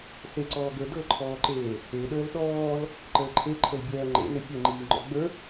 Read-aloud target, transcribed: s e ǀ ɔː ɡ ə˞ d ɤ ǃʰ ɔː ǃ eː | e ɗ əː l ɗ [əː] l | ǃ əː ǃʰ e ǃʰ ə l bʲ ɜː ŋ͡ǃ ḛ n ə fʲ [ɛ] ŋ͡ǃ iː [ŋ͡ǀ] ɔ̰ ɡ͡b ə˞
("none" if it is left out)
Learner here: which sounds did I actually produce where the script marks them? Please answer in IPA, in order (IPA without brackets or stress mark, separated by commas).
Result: ɔː, ɛ, ŋ͡ǃ